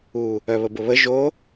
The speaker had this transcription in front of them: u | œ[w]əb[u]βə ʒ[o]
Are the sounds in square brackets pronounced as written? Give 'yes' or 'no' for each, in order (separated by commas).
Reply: no, no, yes